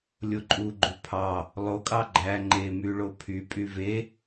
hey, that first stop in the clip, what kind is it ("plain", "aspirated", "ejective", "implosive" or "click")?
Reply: click